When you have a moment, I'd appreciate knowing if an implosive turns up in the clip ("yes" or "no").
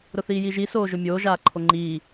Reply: no